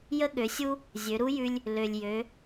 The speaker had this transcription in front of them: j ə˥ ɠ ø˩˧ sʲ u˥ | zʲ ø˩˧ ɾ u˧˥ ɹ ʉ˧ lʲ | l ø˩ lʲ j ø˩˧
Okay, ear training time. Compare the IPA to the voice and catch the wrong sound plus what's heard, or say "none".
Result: ɹ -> j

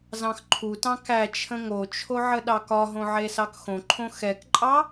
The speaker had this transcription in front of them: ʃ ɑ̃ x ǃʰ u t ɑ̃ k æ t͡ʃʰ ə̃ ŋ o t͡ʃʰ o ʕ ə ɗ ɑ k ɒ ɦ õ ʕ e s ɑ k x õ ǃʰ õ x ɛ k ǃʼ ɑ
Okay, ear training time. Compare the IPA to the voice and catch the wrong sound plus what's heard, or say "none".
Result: ʃ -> z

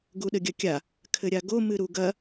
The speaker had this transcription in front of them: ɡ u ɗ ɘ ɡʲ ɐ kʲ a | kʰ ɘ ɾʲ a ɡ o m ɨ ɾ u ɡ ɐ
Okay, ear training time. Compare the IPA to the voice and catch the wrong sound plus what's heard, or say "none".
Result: none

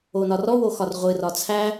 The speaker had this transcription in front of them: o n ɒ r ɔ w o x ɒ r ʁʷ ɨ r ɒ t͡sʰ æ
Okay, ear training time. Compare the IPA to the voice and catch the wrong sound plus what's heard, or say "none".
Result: none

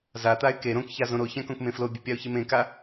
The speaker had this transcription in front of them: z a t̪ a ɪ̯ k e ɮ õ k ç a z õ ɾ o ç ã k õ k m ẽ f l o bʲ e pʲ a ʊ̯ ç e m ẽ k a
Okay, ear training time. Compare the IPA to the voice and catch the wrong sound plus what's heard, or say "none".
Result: ɮ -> ɾ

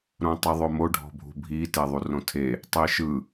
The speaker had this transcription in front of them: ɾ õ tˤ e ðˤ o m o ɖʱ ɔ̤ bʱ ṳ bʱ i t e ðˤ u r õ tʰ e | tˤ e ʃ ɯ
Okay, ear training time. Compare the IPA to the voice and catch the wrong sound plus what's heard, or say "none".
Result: none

